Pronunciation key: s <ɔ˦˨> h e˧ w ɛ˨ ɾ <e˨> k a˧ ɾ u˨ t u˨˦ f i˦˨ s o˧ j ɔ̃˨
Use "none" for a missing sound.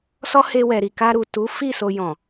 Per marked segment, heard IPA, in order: ɔ˦, i˨

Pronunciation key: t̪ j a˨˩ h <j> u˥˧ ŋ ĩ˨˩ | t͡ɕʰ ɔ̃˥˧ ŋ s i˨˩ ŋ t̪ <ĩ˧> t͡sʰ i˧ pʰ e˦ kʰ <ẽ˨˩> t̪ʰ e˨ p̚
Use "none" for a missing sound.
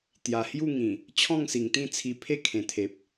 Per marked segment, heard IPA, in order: j, ĩ˥˧, ẽ˨˩

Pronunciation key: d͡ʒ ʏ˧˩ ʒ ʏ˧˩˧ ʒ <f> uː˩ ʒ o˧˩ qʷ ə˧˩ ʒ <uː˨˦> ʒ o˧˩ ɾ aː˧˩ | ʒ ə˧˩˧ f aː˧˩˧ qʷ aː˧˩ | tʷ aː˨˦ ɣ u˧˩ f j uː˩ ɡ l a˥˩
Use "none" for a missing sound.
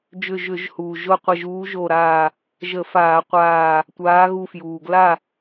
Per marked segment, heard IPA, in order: h, uː˨˦

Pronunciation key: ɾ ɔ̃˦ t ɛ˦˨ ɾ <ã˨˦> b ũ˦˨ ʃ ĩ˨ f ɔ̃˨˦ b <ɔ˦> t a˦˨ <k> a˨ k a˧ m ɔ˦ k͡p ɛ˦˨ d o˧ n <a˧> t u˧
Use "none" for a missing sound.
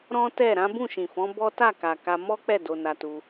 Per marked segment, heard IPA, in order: ã˨˦, ɔ˦, k, a˧

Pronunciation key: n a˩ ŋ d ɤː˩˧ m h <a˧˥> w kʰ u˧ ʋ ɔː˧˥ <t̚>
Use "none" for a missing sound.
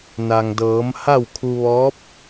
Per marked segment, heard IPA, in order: a˥˨, p̚

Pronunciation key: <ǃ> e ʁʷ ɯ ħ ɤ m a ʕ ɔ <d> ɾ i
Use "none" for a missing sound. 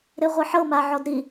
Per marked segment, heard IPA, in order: ɾ, d

